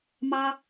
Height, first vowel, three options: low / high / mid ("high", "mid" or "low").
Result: low